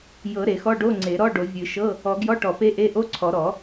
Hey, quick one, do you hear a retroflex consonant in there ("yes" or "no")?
yes